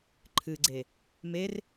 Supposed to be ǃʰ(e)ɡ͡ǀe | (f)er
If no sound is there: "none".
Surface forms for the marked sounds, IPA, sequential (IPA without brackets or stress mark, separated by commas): ɨ, m